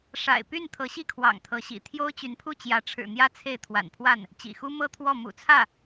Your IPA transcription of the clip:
ʂ a̰˨˩ ɪ̯ p y˥˩ n t̪ʰ ɤ˧˥ ɕ i˥˩ kʰ w ɑ̰˨˩ ŋ t̪ʰ ɤ˧˥ ɕ ḭ˨˩ t̪ʰ j o˥ ʊ̯ t͡ɕ y˧˥ n pʰ u˥˩ t͡ɕ j ä˧˥ ʈ͡ʂʰ ɻ̩˨˩ n̪ j ä˥ t͡sʰ e˥˩ ɪ̯ t̪ʰ w a̰˨˩ n pʰ w a˥˩ n | t͡ɕ ḭ˨˩ x u˥ m ɤ˥˧ t̪ʰ w ɔ˥˩ m ṵ˨˩ t͡sʰ ä˥˩

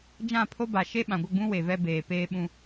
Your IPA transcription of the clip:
d͡ʒ ã˦˨ pʰ o˦ b a˨ ʃ e˦ ɓ ã˨ ɡʷ ɪ˦˨ ɡ͡b ũ˦ w e˨ v ɛ˦ b eː˨ p eː˦ ɓ ũ˦

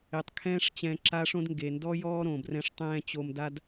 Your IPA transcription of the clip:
e˩ tˤ kʰ ɛ̃ː˦ ʂ t͡ɕ ɛ̃˨ ǁ a˦ ʂ õ˦ d ŋ ɡ e˩ n d ɔ˦ j ɔː˥ ɾ õ˩ b r ɛ̃˦ ʂ tˤ ɛ̃ː˥ t͡ɕ o˦ m d a˥ d

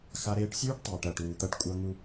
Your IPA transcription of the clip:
x a˦ ɾ eː˦ ʈ sʲ ʉː˦ ʈ tˤ eː˨ ʈ ɐː˨ ʈ uː˨ t̪ ɐ˦ ʈ kʷʼ ɐ˦ ŋ u˦

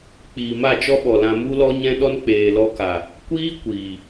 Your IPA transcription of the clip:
k͡p iː˨ m a˦˨ t͡ʃ ɔ˦ ɓ ɔ˨ l ã˧ m u˦ l ɔ˦ ɲ ɛ̃˦ ɗ ɔ˦ n k͡p eː˨ l ɔ˧ k a˨ | kʷ iː˦ kʷ iː˨

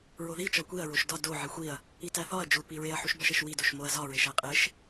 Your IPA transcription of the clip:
ɹ o ð i t͡ʃ ɒ kʷ i ɐ̯ ɹ o ʃ d ɒ d o ʕ i xʷ i ɐ̯ | i t æ θ ɒ ɐ̯ d͡ʒ u p i ɹ e ɐ̯ ħ u ʃ b ɒ ʃ e ʃ w i d o ʃ m o ɐ̯ z ɒ ɹ e ʃ æ qʼ e ʃ

